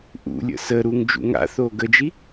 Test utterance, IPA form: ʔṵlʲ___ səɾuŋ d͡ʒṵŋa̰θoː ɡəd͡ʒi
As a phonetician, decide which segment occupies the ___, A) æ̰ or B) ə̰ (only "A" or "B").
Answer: B